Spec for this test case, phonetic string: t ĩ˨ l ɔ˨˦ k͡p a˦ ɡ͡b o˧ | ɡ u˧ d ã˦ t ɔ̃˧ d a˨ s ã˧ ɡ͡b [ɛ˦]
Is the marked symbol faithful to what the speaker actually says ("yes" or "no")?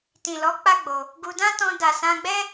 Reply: yes